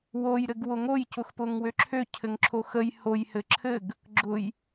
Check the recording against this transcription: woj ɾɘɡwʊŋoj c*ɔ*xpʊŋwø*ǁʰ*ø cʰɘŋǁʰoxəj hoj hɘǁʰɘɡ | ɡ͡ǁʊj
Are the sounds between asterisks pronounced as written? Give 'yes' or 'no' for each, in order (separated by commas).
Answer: no, yes